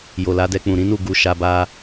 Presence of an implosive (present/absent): absent